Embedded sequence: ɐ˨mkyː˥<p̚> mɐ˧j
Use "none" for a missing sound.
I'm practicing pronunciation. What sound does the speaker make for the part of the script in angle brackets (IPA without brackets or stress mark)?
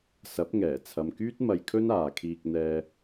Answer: t̚